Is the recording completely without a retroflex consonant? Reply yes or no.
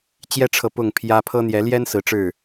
no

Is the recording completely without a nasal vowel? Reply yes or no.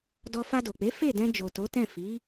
no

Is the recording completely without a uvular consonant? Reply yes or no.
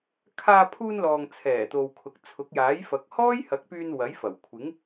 yes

